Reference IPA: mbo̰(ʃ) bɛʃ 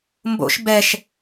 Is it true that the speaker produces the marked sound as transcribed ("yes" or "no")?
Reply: yes